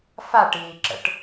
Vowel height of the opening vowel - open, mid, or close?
open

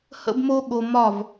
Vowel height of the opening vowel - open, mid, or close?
mid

